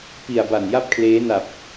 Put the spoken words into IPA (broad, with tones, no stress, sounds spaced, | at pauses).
p i˨˩ a̯ b a˨˩ n j a˥˩ p̚ kʰ l eː˦˥ n a˨˩ p̚